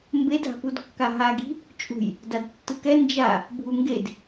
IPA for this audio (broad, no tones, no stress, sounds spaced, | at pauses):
m b e dʱ a̤ p u d kː a ɦ a ɡ i̤ | t͡ʃʼ ṳ j | d a d tː ɯ k ɛ n d͡ʒ a | bʱ u ŋ ɡ e d